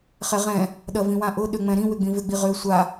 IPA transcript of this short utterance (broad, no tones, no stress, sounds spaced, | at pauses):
χ ɛ ʁ ɛ̃ | ɗ ɐ v ĩ w ã ʔ ʊ ɗ ø ŋ͡m ɛ̃ ɾ ĩ w ʏ ɡ͡b ĩ v ʏ ɡ͡b i ʁ ø sʷ a